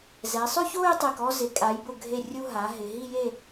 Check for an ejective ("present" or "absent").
present